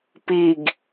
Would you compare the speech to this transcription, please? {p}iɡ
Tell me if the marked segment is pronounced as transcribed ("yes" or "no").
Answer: yes